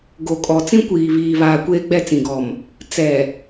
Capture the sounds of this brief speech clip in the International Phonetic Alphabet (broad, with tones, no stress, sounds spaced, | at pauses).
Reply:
ɡ o˨ kʼ ɔ˨ t͡s ĩ˦ kʷ iː˨ β iː˨ β aː˨ kʷ eː˦ ɡ͡b ɛ˦˨ t͡s ĩ˨ ɡ ɔ˨ m | t͡s ɛ˨